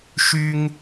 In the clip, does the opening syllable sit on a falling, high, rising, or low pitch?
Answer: high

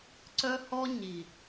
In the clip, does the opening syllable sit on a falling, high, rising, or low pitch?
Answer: high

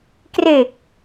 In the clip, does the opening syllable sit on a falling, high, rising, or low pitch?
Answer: low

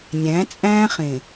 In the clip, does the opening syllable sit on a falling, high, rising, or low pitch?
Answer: rising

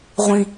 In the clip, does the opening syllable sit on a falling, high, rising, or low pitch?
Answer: low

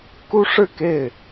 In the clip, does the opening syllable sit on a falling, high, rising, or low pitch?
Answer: high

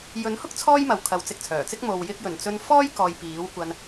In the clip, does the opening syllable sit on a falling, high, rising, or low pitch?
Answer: rising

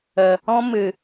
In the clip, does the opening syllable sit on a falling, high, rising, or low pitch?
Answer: low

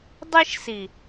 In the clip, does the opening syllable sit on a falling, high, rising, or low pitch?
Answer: high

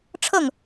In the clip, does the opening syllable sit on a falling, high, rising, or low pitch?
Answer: falling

